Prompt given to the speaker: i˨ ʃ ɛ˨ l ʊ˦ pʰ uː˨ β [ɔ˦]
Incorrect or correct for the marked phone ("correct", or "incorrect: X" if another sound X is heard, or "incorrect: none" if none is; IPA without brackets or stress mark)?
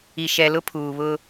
incorrect: ʊ˦